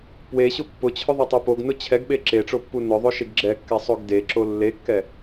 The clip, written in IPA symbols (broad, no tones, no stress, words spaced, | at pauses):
pweɕʊ pːʊt͡ɕʰʊ ðˤetˤopoɡnʊ t͡ɕʰɛɡɓe ǁeʈ͡ʂo pːunʊðˤo ʃeɡɡ͡ǁɛkːɛ sˤoɡdeǁo lːekːɛ